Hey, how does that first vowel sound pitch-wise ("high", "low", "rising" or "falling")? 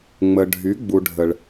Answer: low